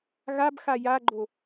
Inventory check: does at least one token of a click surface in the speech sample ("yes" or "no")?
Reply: yes